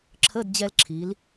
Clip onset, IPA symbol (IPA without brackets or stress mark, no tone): ǁʰ